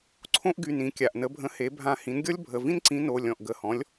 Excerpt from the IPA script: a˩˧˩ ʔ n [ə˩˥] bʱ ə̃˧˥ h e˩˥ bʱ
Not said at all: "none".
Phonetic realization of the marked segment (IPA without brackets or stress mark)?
ə˧˥